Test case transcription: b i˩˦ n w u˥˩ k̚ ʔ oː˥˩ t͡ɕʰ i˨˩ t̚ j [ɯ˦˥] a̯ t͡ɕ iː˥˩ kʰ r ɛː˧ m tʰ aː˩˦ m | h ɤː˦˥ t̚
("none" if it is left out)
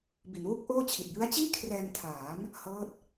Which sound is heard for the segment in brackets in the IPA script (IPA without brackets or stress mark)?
ɯ˦˥